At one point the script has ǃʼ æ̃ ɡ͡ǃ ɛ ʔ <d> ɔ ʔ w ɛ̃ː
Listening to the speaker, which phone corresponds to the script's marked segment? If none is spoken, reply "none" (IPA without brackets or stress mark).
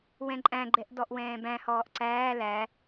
d